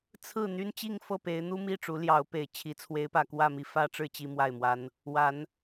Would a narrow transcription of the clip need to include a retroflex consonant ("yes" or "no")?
yes